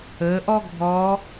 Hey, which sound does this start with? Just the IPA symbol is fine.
əː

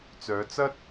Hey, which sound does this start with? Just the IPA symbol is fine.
t͡s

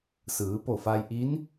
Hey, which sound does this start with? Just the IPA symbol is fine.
s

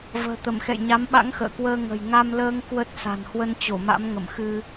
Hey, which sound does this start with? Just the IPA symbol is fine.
v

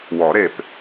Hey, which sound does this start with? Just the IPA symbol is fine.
w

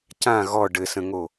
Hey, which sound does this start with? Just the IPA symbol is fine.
c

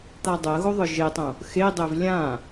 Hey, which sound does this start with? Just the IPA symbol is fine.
t̪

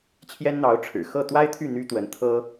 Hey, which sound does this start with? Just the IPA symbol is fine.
t͡ɕʰ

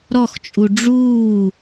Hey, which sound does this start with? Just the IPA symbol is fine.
ɾ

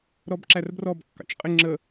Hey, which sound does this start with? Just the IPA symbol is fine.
ɾ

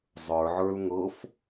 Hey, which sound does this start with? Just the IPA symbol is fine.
zˤ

